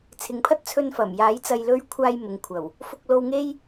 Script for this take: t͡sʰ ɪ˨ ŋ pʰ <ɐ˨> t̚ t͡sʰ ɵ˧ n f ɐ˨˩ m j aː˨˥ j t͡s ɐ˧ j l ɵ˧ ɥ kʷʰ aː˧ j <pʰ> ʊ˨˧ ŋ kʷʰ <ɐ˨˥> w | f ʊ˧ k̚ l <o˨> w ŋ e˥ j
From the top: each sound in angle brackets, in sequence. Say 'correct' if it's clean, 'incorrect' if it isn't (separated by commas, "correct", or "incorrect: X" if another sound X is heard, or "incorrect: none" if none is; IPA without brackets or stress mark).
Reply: incorrect: ɐ˥, incorrect: m, incorrect: ɐ˨˩, incorrect: o˧